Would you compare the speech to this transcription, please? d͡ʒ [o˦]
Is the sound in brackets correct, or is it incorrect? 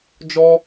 incorrect